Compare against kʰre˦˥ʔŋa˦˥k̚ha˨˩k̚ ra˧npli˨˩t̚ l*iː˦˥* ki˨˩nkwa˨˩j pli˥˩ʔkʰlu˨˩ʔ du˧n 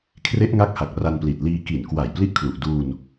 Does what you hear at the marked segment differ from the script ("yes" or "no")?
yes